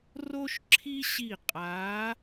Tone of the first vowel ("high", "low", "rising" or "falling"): high